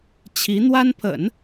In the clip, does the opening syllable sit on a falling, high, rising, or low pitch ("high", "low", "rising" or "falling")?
rising